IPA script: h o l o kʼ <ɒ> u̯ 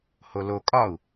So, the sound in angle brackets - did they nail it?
yes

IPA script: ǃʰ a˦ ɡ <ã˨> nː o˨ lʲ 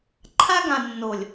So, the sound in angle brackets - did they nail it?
yes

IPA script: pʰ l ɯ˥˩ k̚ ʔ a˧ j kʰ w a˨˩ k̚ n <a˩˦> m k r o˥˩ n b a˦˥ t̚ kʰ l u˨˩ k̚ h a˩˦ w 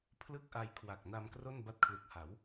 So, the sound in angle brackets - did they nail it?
no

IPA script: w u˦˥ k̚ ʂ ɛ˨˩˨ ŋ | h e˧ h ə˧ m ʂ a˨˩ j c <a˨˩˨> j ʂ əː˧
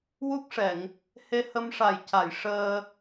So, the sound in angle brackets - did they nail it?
yes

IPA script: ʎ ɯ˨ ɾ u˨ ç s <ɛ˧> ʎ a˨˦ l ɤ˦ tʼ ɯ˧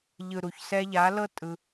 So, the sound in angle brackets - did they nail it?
yes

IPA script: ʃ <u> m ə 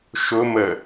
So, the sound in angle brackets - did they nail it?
no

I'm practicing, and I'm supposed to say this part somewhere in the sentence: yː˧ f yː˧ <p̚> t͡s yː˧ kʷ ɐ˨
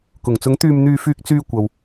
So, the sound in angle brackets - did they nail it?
no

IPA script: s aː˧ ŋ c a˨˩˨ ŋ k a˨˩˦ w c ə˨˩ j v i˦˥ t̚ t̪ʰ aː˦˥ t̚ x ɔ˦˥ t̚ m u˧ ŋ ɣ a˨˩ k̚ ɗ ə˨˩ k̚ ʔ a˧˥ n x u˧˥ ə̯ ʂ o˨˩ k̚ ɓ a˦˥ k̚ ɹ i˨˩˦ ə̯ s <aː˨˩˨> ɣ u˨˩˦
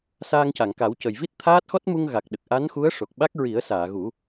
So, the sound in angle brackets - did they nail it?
yes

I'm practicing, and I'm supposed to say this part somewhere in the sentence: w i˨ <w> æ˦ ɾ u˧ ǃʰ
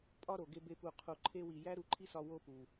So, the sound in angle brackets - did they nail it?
no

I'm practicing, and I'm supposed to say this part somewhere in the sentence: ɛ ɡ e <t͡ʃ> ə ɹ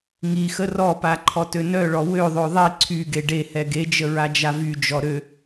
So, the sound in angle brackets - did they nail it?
no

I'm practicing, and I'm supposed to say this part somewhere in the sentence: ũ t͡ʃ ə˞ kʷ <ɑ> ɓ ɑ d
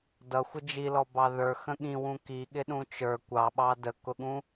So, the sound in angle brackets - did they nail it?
yes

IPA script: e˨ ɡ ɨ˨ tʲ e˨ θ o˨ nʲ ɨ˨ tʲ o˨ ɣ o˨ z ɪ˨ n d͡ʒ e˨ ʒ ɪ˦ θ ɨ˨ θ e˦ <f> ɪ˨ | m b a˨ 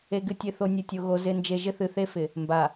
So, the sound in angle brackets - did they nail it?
yes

